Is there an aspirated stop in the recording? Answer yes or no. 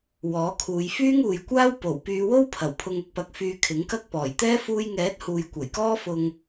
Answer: yes